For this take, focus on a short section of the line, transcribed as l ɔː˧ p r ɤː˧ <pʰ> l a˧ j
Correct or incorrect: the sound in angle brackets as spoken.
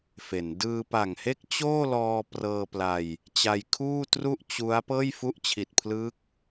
incorrect: p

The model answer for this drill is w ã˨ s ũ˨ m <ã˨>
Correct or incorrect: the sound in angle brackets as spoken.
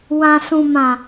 correct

